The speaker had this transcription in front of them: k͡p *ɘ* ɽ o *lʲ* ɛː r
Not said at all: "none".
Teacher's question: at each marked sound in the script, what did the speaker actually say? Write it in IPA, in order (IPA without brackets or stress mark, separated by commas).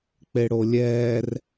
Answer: e, lʲ